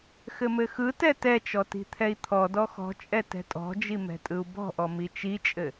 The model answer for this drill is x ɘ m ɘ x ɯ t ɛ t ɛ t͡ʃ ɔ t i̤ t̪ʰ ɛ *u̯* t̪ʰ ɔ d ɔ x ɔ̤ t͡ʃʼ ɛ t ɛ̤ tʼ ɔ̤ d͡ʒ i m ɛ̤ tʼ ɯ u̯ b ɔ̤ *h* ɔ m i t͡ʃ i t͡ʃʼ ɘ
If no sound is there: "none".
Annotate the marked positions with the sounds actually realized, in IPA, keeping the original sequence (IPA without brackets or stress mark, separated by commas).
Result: i̯, ʔ